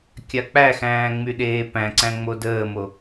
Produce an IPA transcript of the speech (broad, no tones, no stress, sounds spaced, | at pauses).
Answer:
kʲ a k͡p æ x æ̃ː ŋ͡m y ɗ eː p æ̃ ǀ æ̃ ŋ͡m o d əː m o